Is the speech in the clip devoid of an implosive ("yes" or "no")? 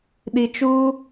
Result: no